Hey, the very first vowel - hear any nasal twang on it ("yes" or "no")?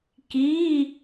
no